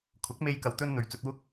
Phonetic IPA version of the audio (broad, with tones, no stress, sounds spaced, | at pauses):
kʰ ʊ˨˥ k̚ m e˧ j k ɐ˨ w t̪ ɵ˧ n n̪ ɵ˨˩ ɥ t͡s ɵ˨ t̚ w ʊ˧ k̚